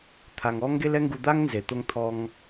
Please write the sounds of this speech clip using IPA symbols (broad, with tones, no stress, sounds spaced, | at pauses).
t̪ʰ a˩ ŋ ɔ˥ ŋ ɡ e˥ l ɛ˥ ŋ ɡ u˧ d̪ a˥ ŋ n z e˩ t̪ o˥ ŋ t̪ʰ ɔ˧ ŋ